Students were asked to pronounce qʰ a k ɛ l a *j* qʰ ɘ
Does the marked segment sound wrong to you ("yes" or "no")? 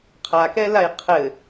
no